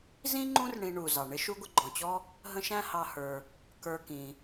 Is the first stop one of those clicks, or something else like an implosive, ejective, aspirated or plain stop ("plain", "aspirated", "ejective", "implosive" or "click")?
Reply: click